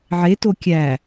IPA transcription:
ʕeto kʲæ

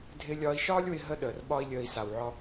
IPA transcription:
dʱɪː˧lʲɒː˧i̯ ʃɒː˦lʲwɪ˧ ɦə˦ɗəː˨rɓɒ˦i̯lʲəː˧i̯ sa˨wʕɒ˧

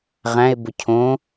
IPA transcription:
ʁæ̃e̯bʊ cʰõ

